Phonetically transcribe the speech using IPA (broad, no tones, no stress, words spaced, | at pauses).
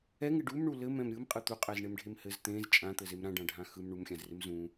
ɛŋɪ ɖumɳu lɘmɛ̃m ɾʲɯmqʼɯ t̪uqʼɛzɳemɖʱem hɘz t̪ẽz t͡ʃʼãt̪ɘzem ɾãɖãɖʱã xɯm ɳumxʲãzrɪm zũ